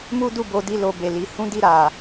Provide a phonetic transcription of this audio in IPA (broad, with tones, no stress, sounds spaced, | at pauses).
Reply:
m u˦ d u˦˨ b o˨˦ d i˧ l o˧ b e˨ l i˨˦ h ũ˦ d i˦˨ ɾ a˨